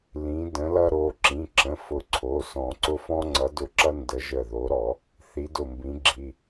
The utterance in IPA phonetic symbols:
l ĩ˨˦ d ə̃˨˦ l ʌ˦ ɾ o˩˧˩ ǁ ĩ˩˧˩ ǁ ə̃˩˧˩ f ʊ˧˩ ǀʰ o˩˧˩ s ɔ̃˨˩˦ ǀ ʊ˦ f ɔ̃˦ ŋ͡ǀ ʌ˨˦ d ʊ˧˩ ǁ ʌ˦ n d ə˨˦ ʒ ə˧˩ ð o˨˦ ɾ ɔ˨˩˦ | θ i˨˦ d ʊ˧˩ m b ĩ˨˦ ɡ͡ǁ i˩˧˩

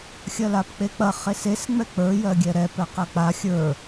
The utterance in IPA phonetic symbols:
xʲ ɐ l a p k͡p e k͡p ɐ χ e s e s ŋ͡m ɛ k͡p ə˞ j ɜ ɡʲ ɛ ɾ ɛ p ɛ q ɐ k͡p a xʲ ə˞

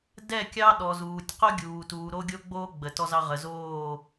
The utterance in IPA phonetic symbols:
d ɛ˦˨ kʲ ɑ˦ ɗ ɔ˨ z uː˨ tʲ q o˦ ɡʲ uː˨ t uː˨ ɾ o˦ ɡʲ o˦ ɡ͡b oː˦ ɡ͡b ə˨ t ɔ˦ z ɑ˦ ʁ ə˨ z oː˦˨

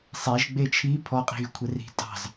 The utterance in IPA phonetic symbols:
sˤ e ʒ ɡ͡b e t͡ʃʰ i pʰ ɔ qʼ i̤ ɣ y kʷʰ ɛ r i̤ tʼ ɑ̤ z

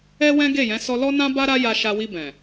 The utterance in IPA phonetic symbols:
ɛ˦ w ɛ̃˦ ɡ e˦˨ j ɛ̃˨˦ s ɔ˧ l ɔ˦ n ã˦ b a˦ ɾ a˦ j a˧ ʃ a˧ w i˧ b ɛ̃˨

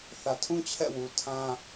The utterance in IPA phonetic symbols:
θ ä˨ tʰ ũ˦ t͡ɕʰ ɛ̰˦˨ w u˨ tʰ ã˦

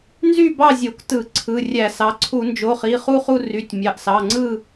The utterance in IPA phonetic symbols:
n z y˥˨ b ɑ˥˨ zʲ o˧˩˧ k t ɯ˧˩˧ ǀʰ ɯ˩˧˩ rʲ æ˧˩˧ s ɑ˩˧˩ ǀʰ u˧˩˧ n d͡ʒ o˩˧˩ χ i˩˧˩ χ u˥˨ χ u˥˨ r y˩˧˩ tʲ mʲ ɑ˩˧˩ ʔ s ɑ˩˧˩ ŋ͡ǀ ɯ˥˨

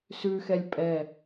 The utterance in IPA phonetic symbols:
s ʉ x ɛ lʲ pʼ ɛ

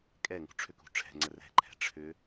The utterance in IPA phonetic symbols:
kʼ ɛ ŋ ṳ ʈ͡ʂʰ ʏ k ṳ ʈ͡ʂʰ ɛ̤ ŋ͡ǀ ə r ɛ̤ ǃʰ ɛ̤ ʈ͡ʂʰ ʏ

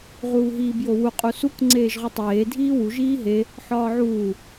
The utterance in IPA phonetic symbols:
ʁ uː ɦ iː b j o w u qʼ u s u k ŋ͡ǀ eː ʒ ʁ u tˤ eː dʱ iː w u ʒ iː ɦ e | ħ ɒː ʕ uː

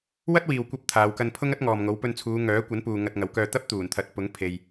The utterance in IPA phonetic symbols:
w ɐ˥ t̚ w iː˨ w kʷ ɐ˧ p̚ t̪ʰ aː˨˧ w k ɐ˧ n pʰ ʊ˥ ŋ ɐ˥ t̚ ŋ ɔː˨ m ŋ o˨˥ w p ɵ˧ n t͡sʰ uː˨˧ ŋ œː˨˥ kʷ ɐ˨˥ n p uː˨ ŋ ɐ˧ t̚ ŋ ɐ˨˥ w k œː˧ t̪ ɐ˥ p̚ t̪ uː˨˩ n t̪ʰ ɐ˨˥ t̚ p ʊ˨˥ ŋ pʰ e˨ j

